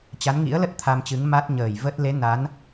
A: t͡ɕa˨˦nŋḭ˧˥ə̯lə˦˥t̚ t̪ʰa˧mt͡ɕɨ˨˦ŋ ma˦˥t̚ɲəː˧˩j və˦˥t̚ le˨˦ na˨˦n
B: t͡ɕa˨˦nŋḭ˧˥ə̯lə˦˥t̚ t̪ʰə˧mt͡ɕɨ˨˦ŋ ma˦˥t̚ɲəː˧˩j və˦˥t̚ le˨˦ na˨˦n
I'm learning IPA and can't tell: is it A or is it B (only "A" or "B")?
A